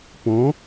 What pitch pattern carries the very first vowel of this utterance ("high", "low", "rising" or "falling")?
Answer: rising